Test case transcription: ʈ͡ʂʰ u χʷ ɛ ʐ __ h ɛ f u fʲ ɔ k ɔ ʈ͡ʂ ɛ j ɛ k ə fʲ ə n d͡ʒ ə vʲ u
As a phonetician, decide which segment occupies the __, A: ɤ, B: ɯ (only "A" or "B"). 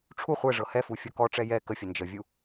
A